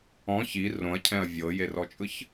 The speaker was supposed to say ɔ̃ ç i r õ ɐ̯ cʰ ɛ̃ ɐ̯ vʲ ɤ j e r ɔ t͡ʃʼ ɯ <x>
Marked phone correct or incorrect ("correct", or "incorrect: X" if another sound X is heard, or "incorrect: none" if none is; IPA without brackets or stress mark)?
incorrect: ç